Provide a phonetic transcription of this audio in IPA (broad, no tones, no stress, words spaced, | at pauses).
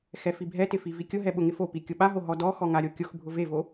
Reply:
xɛfibʱɛtɪ fivikʲʊɦɛ ɓʊŋɪfopi kʲʊɓaɦo ɦɔdɔxɔ ŋaɾʲokʲʊxbʱʊ vevo